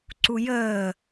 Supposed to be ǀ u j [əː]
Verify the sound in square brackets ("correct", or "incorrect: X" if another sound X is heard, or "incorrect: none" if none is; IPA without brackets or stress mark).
correct